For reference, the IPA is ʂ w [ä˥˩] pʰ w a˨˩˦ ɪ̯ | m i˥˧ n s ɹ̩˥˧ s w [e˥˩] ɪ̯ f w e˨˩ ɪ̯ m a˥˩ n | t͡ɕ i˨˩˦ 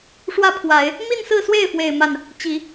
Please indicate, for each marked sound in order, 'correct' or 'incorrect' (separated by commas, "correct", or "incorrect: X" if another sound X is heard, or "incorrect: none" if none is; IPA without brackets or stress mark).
correct, correct